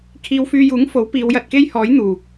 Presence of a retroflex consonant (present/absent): absent